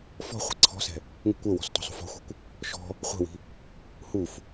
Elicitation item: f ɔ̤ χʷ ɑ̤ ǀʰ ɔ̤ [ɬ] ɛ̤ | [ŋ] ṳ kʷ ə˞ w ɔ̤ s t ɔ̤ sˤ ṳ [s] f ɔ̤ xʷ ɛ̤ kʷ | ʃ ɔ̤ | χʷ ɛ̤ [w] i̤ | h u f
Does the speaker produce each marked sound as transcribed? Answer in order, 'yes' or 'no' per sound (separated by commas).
no, yes, no, yes